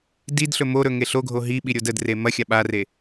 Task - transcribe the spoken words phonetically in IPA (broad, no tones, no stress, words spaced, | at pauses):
did ɬɵmoɾɵ ŋeɬoɡʱo ɦiɓi ɾʲodədre mɐxʲa ɓare